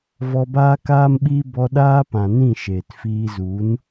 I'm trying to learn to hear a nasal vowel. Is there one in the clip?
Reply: yes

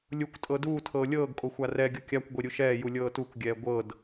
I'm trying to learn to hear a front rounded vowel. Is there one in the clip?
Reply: no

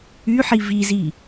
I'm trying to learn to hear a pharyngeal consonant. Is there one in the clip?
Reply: yes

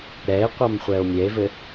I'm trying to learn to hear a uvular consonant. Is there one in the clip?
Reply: yes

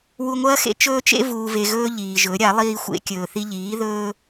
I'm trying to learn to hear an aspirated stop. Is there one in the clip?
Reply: no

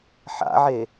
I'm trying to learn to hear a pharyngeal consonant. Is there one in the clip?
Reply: yes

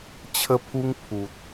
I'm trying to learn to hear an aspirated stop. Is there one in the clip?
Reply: yes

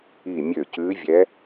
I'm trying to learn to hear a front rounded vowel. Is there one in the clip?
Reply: yes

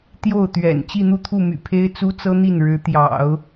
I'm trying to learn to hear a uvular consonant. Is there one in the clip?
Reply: no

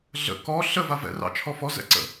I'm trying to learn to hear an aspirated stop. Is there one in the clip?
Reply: yes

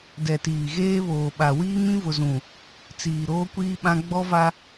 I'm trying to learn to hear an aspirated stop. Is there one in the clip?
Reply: no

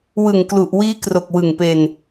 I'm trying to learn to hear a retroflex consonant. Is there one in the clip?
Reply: no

